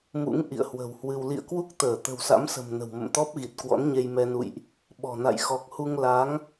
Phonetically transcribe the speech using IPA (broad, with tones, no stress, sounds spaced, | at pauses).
m ṵ˧˥ ŋ ʔ ḭ˧˨ ə̯ h w ə̤˨˩ w h w ɨ˧ w l ḭ˧˨ ə̯ k w u˦˥ k̚ t̪ əː˧˩ t̪ ə̤˨˩ w s a̰˧˥ m s ə̤˨˩ m n ə̤˨˩ w m ə̰˧˨ m t̪ ɔ˦˥ p̚ ɣ i˨˩ t̚ k w ɔ̰˧˥ n ɲ e˧ j m ɛ˧ n ṵ˧˨ j ʔ | ɓ ɔ̤˨˩ n a̰˧˨ j x ɔ˨˩ k̚ h u˧ ŋ l a˨˦ ŋ